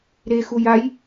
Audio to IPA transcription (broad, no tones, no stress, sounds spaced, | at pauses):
ɾ e x u j a j